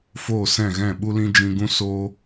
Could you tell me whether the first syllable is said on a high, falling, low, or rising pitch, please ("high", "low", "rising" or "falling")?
falling